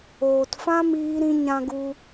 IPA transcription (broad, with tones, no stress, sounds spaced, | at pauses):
oː˨ t f ã˦ m iː˧ ɾ ĩ˧ ɲ ã˦ ɡ u˦